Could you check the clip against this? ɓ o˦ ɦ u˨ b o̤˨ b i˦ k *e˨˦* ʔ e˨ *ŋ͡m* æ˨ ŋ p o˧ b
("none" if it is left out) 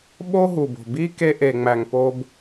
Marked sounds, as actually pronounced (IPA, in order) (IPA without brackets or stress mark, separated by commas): e˧, ŋ͡m